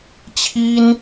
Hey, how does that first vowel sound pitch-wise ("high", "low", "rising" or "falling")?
high